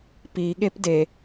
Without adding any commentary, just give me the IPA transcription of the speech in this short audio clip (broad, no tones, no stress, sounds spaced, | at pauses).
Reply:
p i ɠ e p d e